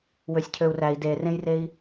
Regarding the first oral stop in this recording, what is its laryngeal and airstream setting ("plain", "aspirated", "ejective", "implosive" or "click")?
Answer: aspirated